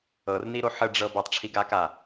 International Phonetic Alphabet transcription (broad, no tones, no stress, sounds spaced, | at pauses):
ɤ r n i ɾ o ħ ə ɖ͡ʐ ɤ b ɛ tˤ ʈ͡ʂʰ i ɡ a k a